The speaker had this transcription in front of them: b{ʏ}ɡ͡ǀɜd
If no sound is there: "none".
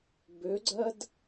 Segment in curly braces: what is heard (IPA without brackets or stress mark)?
ʏ